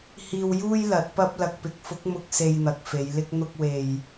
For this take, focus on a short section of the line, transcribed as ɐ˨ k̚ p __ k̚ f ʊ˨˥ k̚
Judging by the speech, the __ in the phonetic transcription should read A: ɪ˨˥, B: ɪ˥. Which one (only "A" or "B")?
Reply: A